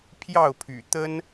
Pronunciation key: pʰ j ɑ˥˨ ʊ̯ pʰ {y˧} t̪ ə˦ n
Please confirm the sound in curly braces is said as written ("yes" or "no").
no